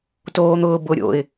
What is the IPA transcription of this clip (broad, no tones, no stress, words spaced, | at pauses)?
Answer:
toːn̪ʊːbʊ ɾʲo̰ɪ̯